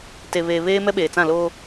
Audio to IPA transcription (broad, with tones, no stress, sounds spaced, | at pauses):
t e˨ β eː˨ β eː˦ m ɛ˦ ɓ eː˨ t͡s ã˦˨ l oː˦